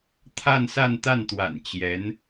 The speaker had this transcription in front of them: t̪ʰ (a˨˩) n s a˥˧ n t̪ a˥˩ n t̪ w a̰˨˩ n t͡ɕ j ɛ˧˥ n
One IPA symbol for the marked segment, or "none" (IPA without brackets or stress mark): a˥˧